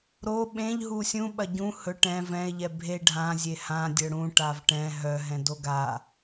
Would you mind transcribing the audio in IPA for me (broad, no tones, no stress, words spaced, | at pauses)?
ɾo ɓẽʎ ɦusʲũ ɓɐɟũ hɵ ʈɛ̃ vɛ̃e̯ʎɛ bʱe ɖʱãzʲe hã dʲœɽũ ʈavʈɛ̃ ɦœɦɛ̃ doɡa